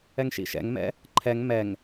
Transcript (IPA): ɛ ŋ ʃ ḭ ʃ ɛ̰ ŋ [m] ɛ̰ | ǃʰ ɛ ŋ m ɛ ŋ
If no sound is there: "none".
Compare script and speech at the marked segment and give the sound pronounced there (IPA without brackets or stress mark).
m